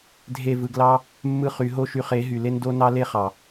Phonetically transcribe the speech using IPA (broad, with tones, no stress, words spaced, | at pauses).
dʱe˦˨vɯ˧ɡlɑ˦ | mːɯ˦χy˨˦ ɦo˦ʃy˧χe˨˦ ɦy˨le˦ndo˦ nɑ˦le˦ χɑ˨